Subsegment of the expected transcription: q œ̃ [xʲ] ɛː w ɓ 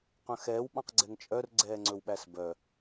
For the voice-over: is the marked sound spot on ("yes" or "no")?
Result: no